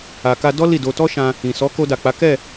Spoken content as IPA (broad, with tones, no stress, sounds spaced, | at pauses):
a˨ k a˧ d ɔ˦ l i˦˨ d o˧ t ɔ˦ ʃ ã˧ | ĩ˨ s ɔ˨˦ k o˧ d a˨ k͡p a˨˦ k ɛ˦˨